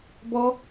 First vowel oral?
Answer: yes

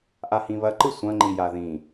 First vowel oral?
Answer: yes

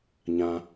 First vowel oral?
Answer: no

